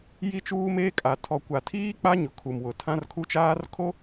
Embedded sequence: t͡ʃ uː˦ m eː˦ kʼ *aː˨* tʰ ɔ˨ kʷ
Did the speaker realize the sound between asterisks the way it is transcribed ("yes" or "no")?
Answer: no